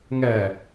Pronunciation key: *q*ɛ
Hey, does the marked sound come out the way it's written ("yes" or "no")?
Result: no